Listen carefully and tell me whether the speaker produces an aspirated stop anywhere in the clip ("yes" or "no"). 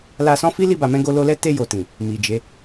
no